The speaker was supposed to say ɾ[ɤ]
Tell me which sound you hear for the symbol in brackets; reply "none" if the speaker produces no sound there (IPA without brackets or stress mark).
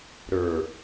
ə˞